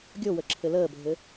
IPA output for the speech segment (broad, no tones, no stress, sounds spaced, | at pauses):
ɡʲ o w ə ǁʰ ɘ l əː bʱ ɘ